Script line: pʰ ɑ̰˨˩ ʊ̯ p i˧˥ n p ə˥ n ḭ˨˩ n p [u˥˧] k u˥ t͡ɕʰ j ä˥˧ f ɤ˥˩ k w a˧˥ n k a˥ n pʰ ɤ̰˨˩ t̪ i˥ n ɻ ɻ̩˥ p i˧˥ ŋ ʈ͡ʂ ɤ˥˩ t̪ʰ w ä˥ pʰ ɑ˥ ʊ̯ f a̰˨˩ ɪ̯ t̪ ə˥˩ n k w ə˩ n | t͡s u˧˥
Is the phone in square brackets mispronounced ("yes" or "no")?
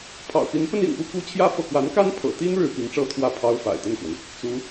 yes